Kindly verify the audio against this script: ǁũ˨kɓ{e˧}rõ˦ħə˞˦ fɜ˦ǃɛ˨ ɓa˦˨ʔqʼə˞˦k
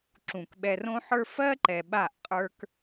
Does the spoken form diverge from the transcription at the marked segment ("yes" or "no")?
yes